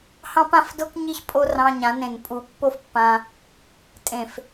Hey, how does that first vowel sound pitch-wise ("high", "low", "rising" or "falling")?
high